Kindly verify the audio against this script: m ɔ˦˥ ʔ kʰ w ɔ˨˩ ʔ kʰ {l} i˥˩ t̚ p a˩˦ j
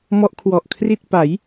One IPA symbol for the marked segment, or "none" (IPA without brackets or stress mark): r